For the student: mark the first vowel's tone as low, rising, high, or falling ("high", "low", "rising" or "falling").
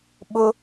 high